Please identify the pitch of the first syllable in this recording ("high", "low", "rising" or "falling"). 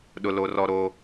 low